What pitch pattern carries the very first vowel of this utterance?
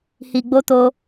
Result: low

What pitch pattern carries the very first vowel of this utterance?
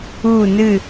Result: falling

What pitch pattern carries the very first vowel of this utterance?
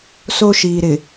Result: high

